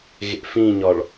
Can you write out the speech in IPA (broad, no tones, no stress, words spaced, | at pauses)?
ɣḛfĩɲɒɭ